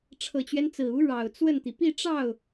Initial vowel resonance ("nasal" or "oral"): oral